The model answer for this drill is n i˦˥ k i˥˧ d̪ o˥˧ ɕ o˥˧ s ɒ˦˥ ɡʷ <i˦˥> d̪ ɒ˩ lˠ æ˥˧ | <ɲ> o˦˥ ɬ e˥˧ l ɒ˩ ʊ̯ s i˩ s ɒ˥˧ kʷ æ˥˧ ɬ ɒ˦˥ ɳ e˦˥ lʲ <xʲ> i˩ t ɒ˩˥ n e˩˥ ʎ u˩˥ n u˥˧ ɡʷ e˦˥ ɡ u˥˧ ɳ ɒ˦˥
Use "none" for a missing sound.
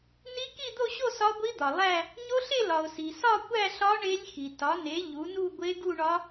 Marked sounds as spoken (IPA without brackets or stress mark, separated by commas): i˦˥, ɲ, x